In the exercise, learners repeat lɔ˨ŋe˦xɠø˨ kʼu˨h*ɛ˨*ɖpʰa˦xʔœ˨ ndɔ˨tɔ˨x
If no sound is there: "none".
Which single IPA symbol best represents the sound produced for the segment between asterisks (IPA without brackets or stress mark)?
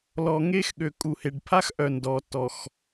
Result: e˨